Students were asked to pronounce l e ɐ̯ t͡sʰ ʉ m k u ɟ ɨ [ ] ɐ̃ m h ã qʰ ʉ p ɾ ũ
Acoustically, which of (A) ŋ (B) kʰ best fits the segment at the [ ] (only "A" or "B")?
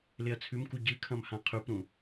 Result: B